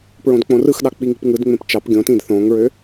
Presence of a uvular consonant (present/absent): absent